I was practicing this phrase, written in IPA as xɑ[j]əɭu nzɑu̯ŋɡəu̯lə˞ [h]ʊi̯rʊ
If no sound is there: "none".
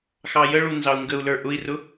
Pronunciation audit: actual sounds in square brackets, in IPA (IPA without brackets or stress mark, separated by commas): j, ʔ